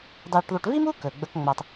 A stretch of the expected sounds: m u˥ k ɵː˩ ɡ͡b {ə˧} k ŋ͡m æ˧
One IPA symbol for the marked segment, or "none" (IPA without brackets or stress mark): ə˧